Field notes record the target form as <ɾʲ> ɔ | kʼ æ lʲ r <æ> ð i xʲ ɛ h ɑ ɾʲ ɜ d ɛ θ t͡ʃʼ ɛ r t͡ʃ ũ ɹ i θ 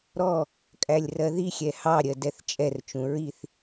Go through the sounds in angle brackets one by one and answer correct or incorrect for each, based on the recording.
incorrect, incorrect

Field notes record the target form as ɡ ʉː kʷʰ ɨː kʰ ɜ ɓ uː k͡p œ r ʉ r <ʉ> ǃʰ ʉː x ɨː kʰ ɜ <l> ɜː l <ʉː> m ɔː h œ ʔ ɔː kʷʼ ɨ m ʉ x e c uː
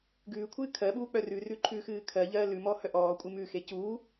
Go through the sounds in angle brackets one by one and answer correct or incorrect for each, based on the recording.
correct, incorrect, incorrect

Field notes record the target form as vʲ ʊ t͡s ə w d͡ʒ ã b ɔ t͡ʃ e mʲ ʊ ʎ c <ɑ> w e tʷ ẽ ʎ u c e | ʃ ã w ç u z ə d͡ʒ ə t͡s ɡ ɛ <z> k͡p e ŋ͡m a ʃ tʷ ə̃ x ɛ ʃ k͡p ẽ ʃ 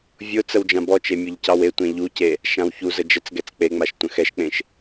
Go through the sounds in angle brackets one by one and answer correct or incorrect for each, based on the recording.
correct, incorrect

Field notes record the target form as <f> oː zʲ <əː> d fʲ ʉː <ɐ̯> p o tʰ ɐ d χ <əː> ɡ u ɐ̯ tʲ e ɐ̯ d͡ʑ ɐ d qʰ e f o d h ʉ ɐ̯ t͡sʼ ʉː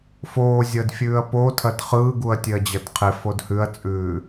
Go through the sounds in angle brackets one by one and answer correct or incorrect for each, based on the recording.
correct, correct, correct, incorrect

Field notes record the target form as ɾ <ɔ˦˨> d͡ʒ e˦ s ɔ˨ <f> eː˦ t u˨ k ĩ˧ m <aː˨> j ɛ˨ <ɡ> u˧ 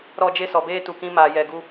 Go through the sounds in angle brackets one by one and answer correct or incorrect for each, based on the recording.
correct, incorrect, correct, correct

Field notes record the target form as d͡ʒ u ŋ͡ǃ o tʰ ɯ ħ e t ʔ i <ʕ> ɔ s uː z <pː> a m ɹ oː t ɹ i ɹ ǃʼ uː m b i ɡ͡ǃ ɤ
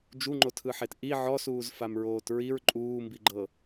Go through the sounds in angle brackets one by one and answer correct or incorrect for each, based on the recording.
correct, incorrect

